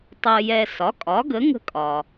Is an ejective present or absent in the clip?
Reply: present